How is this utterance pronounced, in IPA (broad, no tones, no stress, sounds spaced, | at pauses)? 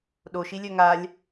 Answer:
ɗ o ʃ i lʲ œ ŋ a lʲ